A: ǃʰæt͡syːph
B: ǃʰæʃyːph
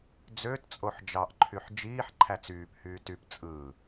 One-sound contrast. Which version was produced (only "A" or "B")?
A